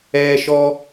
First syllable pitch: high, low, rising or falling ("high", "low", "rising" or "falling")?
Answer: high